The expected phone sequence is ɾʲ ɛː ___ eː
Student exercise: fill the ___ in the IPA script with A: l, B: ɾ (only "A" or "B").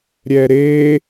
B